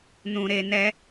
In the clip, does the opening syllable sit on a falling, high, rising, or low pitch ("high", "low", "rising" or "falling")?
low